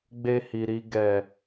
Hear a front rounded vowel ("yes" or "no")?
no